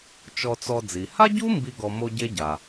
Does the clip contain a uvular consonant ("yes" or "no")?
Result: no